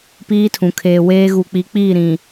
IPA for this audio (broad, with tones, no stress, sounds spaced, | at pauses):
p iː˦ tʰ ũ˨ kʰ eː˨ w eː˦ ɣ u˨ k͡p i˨˦ k͡p iː˦˨ ɾ ĩ˨